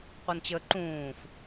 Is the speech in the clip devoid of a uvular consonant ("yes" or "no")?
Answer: no